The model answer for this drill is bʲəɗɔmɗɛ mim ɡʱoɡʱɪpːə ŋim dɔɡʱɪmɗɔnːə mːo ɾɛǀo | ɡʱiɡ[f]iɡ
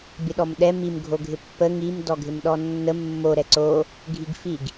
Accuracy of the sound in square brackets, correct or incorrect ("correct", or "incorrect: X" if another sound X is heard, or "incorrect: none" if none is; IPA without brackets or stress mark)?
correct